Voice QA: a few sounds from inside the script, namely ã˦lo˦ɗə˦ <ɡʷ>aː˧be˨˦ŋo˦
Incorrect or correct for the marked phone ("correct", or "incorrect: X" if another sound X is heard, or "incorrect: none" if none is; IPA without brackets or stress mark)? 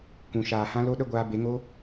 correct